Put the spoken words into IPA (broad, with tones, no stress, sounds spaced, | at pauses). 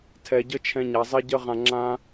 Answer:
tʰ ɛ˨ ɟ ə˦ t͡ʃʰ ɛ̃˧ ɲ a˨ zˤ i˧ ɟ ə˧ ʁ ã˧ ŋ͡ǁ ã˦